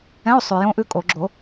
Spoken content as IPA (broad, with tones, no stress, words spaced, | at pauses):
ɛ̃˧˥˧o̯sˤʉ˨ jõ˦˥ʔʉ˦˥kʼo˨˩˦ ɡ͡ǁo˨˩˦